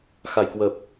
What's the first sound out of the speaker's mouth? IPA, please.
x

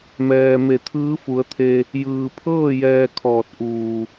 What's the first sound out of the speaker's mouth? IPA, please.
m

